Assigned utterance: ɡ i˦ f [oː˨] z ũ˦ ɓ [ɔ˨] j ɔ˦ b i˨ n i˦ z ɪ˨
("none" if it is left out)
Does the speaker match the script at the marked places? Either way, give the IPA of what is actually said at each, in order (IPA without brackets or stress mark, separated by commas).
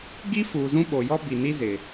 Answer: uː˨, o˨